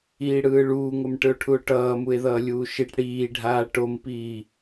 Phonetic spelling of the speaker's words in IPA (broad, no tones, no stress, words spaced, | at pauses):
iːɽɯːɭuːŋom ʈɯo̯ʈʰuo̯ʈʌː mue̯ðʌːlʲuːʃiʈ ɽiːɖʱaː ʈompiː